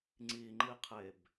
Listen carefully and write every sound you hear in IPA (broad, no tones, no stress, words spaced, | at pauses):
ŋ͡ǀiŋ͡ǃiqʰeb